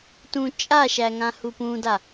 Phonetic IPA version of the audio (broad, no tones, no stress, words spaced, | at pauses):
tũ t͡ʃʼaʃæ ŋãhupũda